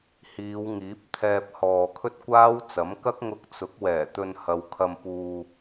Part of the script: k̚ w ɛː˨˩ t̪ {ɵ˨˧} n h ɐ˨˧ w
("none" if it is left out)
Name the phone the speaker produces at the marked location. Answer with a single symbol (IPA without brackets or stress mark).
ɵ˧